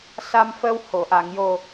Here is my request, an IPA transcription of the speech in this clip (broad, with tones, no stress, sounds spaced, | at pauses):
s a˧ m f ə˧ w h o˨˩˨ ʔ a˨˩˨ ŋ j o˨˩